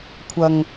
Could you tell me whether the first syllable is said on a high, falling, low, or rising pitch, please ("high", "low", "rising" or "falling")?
low